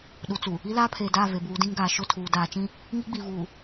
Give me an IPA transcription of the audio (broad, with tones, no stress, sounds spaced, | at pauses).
ɗ u˨ t͡s u˨ | i˦ l aː˦ pʰ eː˨ d aː˦˨ v e˨ b uː˨˦ d ĩ˦ ŋ ɡ aː˨ ʃ ʊ˦˨ tʰ uː˨ d aː˨ t͡ʃ ĩ˦ | ŋ i˦ ɡ͡b i˨ v uː˨